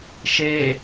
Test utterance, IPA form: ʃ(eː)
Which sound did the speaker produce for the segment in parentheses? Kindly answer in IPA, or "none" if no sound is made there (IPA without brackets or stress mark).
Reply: eː